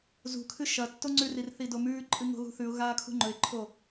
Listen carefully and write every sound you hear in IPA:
zṳkʰɨ ʃɐ tːoŋ͡ǀʉrir θidomʉːǃʼɨ ŋo̤ɣṳθʉʊ̯ɣaː kʰṳŋ͡ǃɵɪ̯ǃʰo

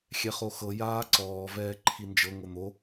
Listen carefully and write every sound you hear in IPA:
xʲɛχoxɤ jaːǀɔː vɛːǃʰind͡ʒɤ ŋon̪o

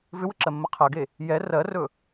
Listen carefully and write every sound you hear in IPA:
vʏwəǁɜmːə qʰɜɡe | jɛ rɜrɵ

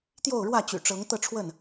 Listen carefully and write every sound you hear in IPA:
t̪jo˥˨ʊ̯ɻwä˥˨t͡ɕy̰˨˩ʈ͡ʂɤ˨˦ŋ t̪ɤ˥˨ʈ͡ʂʰwə˥˨n

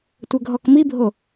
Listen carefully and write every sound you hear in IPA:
tʷɘɡʱɔkmibʱo

